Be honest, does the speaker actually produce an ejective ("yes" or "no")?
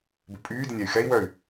yes